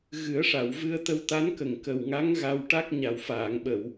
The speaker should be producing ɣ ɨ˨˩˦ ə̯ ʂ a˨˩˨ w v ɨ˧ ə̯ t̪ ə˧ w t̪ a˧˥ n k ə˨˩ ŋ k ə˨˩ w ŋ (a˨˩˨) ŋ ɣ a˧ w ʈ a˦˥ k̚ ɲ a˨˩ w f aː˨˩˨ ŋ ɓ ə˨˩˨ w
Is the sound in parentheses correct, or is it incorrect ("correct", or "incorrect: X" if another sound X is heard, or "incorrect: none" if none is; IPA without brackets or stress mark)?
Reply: incorrect: a˧˥